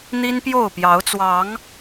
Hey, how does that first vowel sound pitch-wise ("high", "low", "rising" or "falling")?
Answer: high